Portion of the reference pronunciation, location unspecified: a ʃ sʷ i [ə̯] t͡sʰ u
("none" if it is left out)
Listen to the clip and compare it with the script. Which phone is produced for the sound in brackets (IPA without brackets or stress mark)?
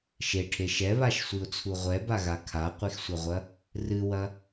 ʊ̯